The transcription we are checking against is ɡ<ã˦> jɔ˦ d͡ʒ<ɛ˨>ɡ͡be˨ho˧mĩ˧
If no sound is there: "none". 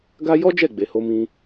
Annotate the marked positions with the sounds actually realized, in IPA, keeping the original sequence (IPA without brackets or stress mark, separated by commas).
a˦, ɛ˦˨